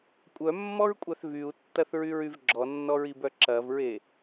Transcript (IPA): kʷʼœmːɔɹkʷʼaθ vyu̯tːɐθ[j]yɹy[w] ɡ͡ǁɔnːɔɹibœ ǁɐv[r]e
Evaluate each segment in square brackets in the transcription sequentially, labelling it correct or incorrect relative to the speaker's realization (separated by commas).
incorrect, incorrect, incorrect